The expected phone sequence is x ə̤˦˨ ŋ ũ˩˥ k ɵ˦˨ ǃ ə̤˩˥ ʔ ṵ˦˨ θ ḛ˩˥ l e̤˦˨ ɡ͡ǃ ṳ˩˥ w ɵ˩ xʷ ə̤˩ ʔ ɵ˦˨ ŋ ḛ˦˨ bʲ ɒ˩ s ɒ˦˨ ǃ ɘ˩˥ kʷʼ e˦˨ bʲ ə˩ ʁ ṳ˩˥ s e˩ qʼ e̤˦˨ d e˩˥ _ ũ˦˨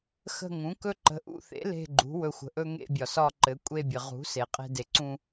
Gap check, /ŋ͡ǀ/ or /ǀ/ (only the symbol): ǀ